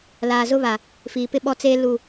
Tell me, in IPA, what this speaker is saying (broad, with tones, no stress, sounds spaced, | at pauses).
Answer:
l aː˨ z ʊ˦ β a˨ | f iː˨ p ɪ˦ ɓ ɔ˦ t͡s eː˦ l u˦˨